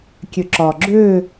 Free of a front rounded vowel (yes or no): no